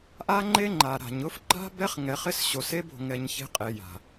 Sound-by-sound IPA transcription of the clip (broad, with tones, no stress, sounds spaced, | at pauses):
ʔ a˦ ŋ͡ǃ e˦ ŋ͡ǃ a˨ ɾ a̤˨ ɲ ʊ˦ f ǃ a̤˦ b ɛ˦ χ ŋ ɛ˨ χ ɪ˦ s ɕ o˨ s e˦ b o̤˨ ŋ ɛ˨ ɲ ç e̤˦ qʼ e˨ j a̤˨